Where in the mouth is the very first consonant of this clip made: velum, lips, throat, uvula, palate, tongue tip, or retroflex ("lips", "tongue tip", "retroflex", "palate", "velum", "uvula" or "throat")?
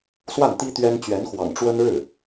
tongue tip